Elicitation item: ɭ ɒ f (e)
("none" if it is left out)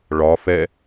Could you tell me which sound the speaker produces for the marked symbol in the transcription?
ɛ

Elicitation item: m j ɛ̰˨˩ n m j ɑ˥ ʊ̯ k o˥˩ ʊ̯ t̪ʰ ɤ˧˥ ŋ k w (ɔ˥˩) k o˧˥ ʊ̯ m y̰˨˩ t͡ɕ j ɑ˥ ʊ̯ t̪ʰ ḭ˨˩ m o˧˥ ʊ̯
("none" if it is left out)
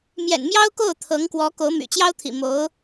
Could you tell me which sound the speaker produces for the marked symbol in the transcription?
ɔ˧˥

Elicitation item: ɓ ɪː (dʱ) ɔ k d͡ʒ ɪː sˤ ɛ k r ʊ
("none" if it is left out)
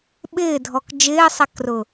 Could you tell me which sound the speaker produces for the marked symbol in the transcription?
dʱ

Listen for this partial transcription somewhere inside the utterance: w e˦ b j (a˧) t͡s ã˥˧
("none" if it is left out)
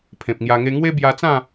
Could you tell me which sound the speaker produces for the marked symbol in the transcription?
a˧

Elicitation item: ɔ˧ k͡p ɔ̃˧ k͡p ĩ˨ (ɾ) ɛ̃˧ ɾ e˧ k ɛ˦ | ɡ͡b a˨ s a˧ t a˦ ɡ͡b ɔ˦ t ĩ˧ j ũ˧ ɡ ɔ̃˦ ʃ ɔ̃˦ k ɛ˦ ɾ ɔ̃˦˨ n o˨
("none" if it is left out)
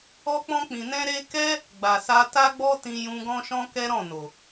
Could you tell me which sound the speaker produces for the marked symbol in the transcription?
n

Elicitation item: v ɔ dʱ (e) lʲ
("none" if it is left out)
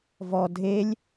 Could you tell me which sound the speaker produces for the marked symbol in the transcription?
e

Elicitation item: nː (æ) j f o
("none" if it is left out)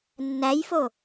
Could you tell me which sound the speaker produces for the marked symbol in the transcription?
æ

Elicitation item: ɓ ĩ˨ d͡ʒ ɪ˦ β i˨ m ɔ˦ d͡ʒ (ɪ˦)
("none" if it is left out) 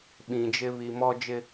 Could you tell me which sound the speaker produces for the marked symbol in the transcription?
ɪ˦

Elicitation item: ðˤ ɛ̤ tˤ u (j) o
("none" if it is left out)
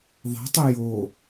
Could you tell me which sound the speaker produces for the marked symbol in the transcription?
j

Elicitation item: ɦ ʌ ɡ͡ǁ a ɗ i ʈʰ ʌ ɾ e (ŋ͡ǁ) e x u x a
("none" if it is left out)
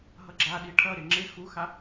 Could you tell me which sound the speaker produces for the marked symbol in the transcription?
ŋ͡ǁ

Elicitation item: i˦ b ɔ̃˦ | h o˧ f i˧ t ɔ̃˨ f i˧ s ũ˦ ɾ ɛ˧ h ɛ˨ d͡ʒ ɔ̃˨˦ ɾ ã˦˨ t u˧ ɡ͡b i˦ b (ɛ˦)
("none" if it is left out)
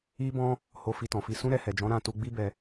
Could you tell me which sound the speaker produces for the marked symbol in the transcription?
ɛ˧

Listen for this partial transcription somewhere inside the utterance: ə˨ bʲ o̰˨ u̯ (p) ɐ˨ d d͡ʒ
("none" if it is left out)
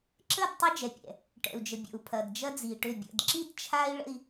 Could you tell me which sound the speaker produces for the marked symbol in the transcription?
pʰ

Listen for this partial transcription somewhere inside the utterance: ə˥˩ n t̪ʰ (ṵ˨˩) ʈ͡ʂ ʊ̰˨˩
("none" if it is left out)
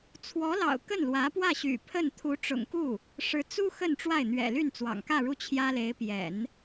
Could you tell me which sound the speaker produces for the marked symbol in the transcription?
u˧˥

